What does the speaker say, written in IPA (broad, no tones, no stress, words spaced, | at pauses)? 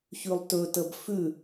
çʉlˠtɵtəb fʉ